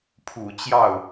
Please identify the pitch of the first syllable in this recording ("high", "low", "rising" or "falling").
low